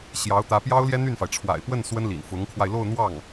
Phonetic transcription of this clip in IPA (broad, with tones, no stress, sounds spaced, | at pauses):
ɕ j ɑ˧˥ ʊ̯ t̪ ä˧˥ p j ɑ˥ ʊ̯ l j ɛ˥ n̪ y˥˩ n f a˩ ɪ̯ ʈ͡ʂʰ w a̰˨˩ ɪ̯ p w ə˥˩ n s w ə˥ n l ḭ˨˩ n f ʊ˧˥ ŋ kʰ w a˧ ɪ̯ l o˥˧ ʊ̯ n̪ w ɑ˥˩ ŋ